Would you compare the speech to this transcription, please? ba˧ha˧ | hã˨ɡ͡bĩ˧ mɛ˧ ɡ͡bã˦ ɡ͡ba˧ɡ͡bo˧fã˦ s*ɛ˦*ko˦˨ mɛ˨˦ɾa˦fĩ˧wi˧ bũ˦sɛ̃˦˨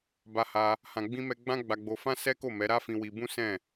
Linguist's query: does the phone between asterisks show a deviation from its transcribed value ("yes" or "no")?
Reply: no